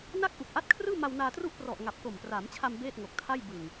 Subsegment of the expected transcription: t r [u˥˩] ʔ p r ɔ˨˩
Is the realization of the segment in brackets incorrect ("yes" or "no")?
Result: no